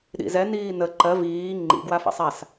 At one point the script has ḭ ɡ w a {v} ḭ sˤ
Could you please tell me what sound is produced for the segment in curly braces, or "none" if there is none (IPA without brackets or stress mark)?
f